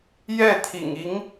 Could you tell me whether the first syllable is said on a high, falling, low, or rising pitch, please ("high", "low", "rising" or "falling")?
falling